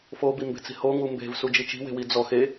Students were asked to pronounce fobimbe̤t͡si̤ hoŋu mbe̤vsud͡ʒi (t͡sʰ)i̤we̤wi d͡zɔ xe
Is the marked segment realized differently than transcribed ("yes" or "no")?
yes